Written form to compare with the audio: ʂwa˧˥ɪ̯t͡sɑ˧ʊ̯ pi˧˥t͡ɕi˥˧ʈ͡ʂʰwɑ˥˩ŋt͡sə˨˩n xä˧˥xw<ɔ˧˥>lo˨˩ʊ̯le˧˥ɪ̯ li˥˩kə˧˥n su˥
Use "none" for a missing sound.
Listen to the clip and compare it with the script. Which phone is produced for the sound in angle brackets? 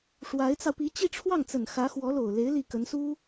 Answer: ɔ˧˥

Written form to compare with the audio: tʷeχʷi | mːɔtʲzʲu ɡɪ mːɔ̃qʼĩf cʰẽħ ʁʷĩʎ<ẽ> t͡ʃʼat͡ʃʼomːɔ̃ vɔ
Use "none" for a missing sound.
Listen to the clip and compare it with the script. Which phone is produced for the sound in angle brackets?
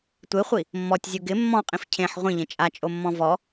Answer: ẽ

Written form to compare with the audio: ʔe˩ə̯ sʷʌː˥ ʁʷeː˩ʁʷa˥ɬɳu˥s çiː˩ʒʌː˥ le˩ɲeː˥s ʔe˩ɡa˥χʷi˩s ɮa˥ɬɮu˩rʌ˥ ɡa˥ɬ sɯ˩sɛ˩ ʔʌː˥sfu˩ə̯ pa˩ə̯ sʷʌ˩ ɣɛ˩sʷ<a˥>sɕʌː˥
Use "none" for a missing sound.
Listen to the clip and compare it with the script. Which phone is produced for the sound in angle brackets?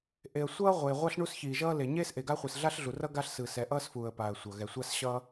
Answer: a˥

